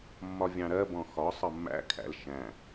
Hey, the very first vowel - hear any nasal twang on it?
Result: no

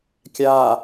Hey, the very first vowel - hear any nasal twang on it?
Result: no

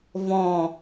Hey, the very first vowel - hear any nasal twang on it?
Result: yes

